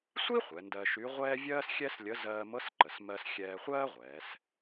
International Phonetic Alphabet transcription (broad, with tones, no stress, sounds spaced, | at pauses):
sʷ i˥ χʷ ɛ˩˧ n d ɜ˧ ʃ y˧˥ ʁʷ ɛː˥ vʲ ɜː˥ s xʲ ɛ˥ s lʲ ə˧˥ z ɜː˧ m ɤ˧˥ s ǃ ə˩ s m ɜ˧ s xʲ ɛː˧ χʷ ɜː˥ ʁʷ ɛː˩˧ s